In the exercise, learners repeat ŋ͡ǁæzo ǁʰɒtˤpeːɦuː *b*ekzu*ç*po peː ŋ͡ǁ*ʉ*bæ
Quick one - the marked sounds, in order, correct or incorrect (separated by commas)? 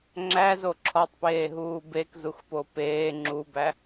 correct, incorrect, incorrect